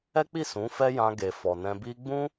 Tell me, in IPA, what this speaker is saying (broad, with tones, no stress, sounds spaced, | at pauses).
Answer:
ɛ˦ k͡p i˦˨ s ũ˨˦ f ɛ˦ j ã˧ ɡ e˨ f ɔ˨ n ɛ̃˧ b i˧ ɡ͡b ũ˦